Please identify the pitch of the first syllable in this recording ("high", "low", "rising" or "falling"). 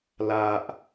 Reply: low